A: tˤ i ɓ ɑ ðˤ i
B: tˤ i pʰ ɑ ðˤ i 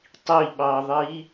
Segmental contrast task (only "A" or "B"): A